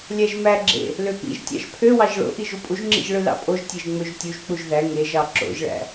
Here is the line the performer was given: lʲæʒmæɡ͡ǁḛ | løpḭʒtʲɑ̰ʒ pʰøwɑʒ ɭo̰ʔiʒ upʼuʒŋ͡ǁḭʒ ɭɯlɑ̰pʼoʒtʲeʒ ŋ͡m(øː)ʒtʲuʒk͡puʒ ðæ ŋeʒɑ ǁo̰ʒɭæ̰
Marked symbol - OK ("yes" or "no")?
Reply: no